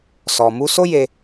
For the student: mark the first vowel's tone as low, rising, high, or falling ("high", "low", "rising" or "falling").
low